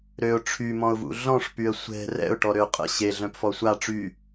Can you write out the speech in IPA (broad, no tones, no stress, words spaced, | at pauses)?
ɾøʊ̯ ʈ͡ʂʰymɔ̃ʊ̯vṵ ɮɔ̃ʂpyə̯ sʷɛ̤ rɛ̰ʊ̯ʈɔɾø qʼə̰ ɕeɮœ̃pfɔ sʷa ʈ͡ʂy